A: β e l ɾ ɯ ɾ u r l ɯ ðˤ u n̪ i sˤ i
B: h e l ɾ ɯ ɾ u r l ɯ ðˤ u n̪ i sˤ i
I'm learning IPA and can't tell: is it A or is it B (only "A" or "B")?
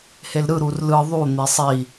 B